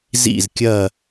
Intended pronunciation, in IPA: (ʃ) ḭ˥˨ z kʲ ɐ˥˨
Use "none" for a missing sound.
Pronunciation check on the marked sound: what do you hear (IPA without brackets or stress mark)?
z